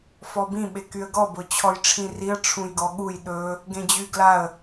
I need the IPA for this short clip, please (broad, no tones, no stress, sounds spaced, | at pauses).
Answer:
f ɔ b ĩ ɓ e k y ə̯ ɡ ɔ b ʊ t͡ɕʰ ɔ j ʈ͡ʂʰ ĩ r i ə̯ ʈ͡ʂʰ ũ j ɡ ɔ ɠ u j ɗ ɵ | ɡ ẽ d͡ʑ y ɡ l a ə̯